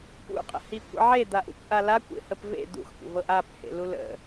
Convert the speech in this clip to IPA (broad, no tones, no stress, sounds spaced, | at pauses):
p ṵ qʼ ə̰ h i kʷ ḛ ʕ e d̪ a ʔ ṵ kʷ ʔ a l a kʷ ḛ h ə p v ḛ d̪ ṵ x kʷ ə̰ v ɤ ʔ a p h ḛ l u l ə̰